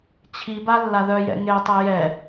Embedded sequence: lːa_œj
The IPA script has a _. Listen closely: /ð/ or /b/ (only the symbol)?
ð